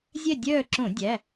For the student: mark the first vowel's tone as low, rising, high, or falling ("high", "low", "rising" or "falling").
falling